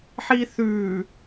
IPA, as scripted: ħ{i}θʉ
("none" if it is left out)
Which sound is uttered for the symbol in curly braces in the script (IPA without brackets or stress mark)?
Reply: i